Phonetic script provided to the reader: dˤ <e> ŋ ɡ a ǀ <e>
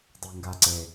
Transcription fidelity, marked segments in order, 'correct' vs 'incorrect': correct, correct

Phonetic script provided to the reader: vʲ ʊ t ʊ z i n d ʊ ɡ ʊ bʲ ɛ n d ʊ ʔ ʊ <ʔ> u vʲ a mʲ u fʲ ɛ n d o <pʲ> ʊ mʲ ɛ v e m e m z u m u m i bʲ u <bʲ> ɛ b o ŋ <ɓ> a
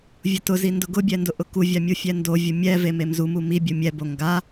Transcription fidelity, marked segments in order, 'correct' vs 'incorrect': incorrect: k, incorrect: vʲ, incorrect: mʲ, incorrect: ɡ

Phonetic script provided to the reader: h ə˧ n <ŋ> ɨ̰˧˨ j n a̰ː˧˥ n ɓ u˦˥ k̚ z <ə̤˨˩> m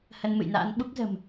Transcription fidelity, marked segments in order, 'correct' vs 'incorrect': incorrect: m, correct

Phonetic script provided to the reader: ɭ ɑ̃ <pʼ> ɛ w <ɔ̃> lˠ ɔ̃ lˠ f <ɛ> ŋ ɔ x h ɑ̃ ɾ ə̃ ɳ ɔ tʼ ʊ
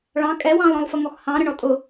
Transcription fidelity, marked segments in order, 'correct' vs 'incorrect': incorrect: kʼ, incorrect: ɑ̃, incorrect: ə

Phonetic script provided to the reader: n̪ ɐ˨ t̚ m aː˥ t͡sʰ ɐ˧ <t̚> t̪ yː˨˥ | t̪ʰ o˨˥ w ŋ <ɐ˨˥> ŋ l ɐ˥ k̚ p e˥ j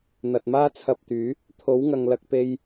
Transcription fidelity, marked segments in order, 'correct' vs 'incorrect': incorrect: p̚, incorrect: ɐ˨

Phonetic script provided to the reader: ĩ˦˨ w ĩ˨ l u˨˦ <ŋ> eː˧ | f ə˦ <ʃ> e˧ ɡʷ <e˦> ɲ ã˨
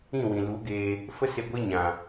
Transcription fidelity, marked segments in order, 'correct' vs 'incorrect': incorrect: ɡ, incorrect: s, correct

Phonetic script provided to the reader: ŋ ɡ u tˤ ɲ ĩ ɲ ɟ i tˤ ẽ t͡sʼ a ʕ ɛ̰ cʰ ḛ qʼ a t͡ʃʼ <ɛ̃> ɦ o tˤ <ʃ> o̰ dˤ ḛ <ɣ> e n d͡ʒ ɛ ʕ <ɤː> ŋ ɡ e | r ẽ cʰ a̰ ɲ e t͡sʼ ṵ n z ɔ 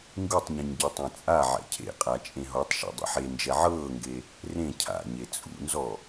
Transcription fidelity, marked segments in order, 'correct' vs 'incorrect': incorrect: ẽ, correct, incorrect: ħ, correct

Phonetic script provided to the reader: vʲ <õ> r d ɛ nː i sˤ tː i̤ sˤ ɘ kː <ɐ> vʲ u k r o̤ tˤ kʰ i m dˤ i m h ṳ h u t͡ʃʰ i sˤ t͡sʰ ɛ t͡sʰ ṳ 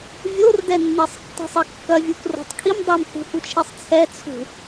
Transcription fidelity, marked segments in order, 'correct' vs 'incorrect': incorrect: o, correct

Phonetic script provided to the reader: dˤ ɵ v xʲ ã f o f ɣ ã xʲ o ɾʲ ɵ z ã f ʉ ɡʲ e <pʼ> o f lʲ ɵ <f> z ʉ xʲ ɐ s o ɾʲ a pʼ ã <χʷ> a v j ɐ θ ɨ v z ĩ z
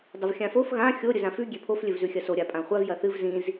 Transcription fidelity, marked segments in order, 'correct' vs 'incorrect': incorrect: pʰ, incorrect: v, correct

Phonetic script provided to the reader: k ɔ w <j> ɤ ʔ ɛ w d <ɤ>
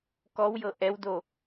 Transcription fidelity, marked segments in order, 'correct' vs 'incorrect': correct, incorrect: o

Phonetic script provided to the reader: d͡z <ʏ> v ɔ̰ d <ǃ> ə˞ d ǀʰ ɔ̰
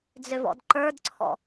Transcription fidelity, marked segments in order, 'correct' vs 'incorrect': correct, correct

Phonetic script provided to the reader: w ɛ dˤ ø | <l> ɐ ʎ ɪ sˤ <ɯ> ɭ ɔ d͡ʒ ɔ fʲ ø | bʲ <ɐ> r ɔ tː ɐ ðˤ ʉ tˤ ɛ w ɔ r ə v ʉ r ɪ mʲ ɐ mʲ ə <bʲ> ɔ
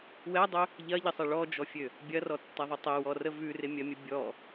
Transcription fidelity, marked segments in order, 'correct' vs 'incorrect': incorrect: ʎ, incorrect: ə, correct, correct

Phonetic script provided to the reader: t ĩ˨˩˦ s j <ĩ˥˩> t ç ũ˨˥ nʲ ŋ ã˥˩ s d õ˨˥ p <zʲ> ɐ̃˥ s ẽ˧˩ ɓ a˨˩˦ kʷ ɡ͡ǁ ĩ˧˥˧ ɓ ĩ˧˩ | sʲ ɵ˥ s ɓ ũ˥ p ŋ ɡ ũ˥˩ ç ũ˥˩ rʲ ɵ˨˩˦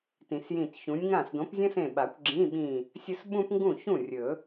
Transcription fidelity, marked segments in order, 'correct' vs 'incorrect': incorrect: ĩ˧˩, correct

